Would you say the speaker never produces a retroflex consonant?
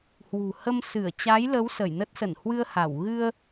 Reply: yes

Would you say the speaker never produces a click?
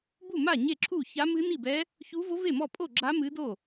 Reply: no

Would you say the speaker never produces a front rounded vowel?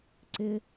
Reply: yes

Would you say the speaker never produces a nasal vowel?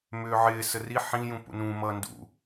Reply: no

